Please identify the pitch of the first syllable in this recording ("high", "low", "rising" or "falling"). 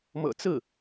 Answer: low